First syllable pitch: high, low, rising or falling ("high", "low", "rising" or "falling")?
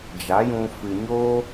rising